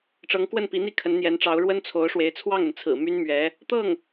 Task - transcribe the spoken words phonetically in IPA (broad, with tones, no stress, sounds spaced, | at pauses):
ʈ͡ʂ ɤ˧˥ ŋ k w ə˥˩ n p i˧˥ n̪ i˥˩ kʰ ə˧˥ n n̪ j ɛ˧˥ n ʈ͡ʂ ɑ˧˥ ʊ̯ ɻ w ə˥ n t͡sʰ o˧˥ ʊ̯ ʂ w e˧˥ ɪ̯ t͡sʰ w ɑ˥˩ ŋ ə˩ n t͡sʰ ɹ̩˨˩ m y˥ n m ɥ ɛ˧˥ | t̪ ɤ˥˩ ŋ